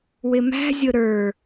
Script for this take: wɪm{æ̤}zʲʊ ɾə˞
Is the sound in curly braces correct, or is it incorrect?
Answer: correct